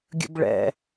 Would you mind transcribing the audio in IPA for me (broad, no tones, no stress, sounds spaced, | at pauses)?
ɡʲ ə̰ b ɭ ɛ̰